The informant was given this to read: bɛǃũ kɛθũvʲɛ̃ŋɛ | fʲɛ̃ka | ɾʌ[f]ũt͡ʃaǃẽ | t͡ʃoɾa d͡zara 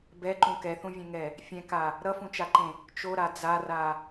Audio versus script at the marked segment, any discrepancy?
no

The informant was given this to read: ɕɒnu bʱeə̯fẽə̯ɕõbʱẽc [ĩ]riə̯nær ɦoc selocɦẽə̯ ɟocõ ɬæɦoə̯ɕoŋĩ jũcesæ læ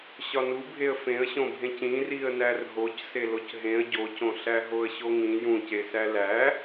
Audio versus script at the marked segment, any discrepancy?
no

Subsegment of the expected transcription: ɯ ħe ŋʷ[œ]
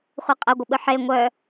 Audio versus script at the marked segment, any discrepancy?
no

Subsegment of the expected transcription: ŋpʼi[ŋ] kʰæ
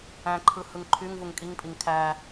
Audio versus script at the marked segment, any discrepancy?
no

